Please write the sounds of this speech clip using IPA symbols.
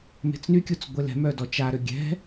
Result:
me̤t͡snykʲut͡s ɡʷelɛ̤mœ dɔt͡ʃaɾø ɡʲɛ̤

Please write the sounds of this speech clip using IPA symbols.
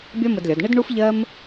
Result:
bʲɒ˥mə˧dlʲɒ˩˧d ɳɪ˥d ɳu˥fʎɜ˥m

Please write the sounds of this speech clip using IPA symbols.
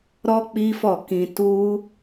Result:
ɾɔ˦ k͡pi˦fɔ˦˨ kĩ˧tu˦

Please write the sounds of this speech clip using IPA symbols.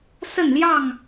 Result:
sə˥˨nljɑ˥˨ŋ

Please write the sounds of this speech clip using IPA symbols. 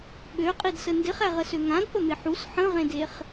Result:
ɓøqʼidsə ndɪχæʁəsø ŋãdpəmɪ ħus ħə̃ʁẽdeχ

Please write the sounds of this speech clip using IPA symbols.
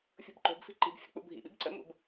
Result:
fʲo̤bǃo̤bfi̤ ǃi̤bfʲə̰ k͡pṵbʱḭɓḭb ǀə̰mṵb

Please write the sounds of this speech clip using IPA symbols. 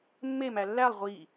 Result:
mːe mælːælˠ ʁʷi

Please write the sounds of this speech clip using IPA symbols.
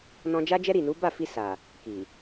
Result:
nɔ̃˧d͡ʒa˦d͡ʒɛ˦ ɾi˦˨nu˨˦ ba˦˨fi˧ sa˨ | ki˨

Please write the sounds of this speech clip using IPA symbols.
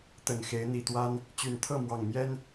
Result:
t̪ə˨˩nxe˨˦ɪ̯ n̪i˨˩t̪wa˦n | t͡ɕy˨˩nt̪ʰɤ˥˨mwɑ˨˩ŋmjɛ˦n

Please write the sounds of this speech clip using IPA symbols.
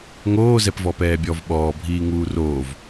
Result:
ŋoːzɛp vɔpɛːbʲɔv ɓɔːbʱiːŋuː roːv

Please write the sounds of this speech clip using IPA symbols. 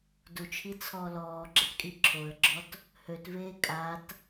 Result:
dut͡ʃʰi t͡sʰɔ lɔːɡ͡ǁɛtkʼi ǁʰoə̯ɡ͡ǁɔt | høtveː kʼat

